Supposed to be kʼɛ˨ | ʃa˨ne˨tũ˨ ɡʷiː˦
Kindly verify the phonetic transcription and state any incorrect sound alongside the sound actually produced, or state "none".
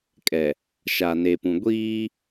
t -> p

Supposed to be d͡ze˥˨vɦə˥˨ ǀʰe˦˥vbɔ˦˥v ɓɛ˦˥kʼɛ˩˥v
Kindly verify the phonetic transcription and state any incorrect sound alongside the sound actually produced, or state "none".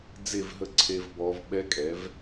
none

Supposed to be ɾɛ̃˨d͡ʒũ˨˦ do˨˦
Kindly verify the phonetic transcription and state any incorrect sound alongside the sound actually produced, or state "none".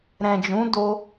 o˨˦ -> o˦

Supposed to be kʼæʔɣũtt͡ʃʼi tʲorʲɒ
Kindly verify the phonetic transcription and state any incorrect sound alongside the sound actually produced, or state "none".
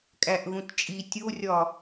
none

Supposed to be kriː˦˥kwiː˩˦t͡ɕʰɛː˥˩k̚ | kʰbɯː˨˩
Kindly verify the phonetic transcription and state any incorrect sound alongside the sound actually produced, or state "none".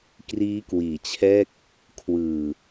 b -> w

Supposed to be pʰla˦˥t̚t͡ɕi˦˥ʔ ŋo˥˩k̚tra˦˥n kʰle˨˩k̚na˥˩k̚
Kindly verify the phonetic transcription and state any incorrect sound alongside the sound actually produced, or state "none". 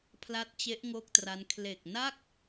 i˦˥ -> e˦˥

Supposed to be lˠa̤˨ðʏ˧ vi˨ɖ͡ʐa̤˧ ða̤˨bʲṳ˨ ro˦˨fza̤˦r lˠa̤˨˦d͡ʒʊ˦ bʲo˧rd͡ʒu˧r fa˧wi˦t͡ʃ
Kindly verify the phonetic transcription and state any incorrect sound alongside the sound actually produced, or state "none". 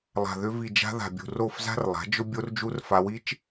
ɖ͡ʐ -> d͡ʒ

